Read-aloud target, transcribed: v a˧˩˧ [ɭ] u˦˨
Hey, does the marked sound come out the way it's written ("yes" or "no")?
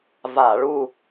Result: yes